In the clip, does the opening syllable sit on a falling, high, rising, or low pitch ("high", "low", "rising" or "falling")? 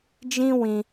high